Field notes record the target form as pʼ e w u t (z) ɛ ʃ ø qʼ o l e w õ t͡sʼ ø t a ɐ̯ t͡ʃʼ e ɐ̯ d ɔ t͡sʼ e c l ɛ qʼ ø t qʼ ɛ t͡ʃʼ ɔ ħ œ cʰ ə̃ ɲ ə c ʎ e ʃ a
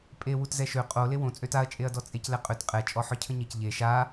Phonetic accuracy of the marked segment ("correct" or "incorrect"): correct